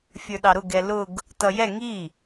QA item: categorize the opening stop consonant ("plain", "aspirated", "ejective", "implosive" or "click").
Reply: implosive